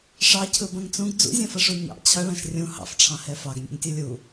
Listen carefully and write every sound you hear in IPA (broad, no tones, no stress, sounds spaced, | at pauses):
ʂ ɑ cʰ ɯ b ɐ̃ ŋ t͡s ũ ɡ d͡z ṵ zʲ ɐ̃ f ɐ ʂ u ɲ ɑ̰ t͡ɕʰ ɐ ɭ ã ʃ rʲ ũ h ɑ̰ f ʈ͡ʂʰ ɑ̃ h ɛ f ɑ ɡ nʲ ṵ ŋ tʲ ɯ lʲ u